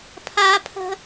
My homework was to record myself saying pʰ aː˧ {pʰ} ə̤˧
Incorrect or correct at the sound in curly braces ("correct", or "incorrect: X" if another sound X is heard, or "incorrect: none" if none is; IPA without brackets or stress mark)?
correct